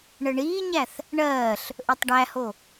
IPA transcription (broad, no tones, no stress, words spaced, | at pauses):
ɳəɳiːɲæθ | ɳɜːɬ | ʔɵtˤɖæho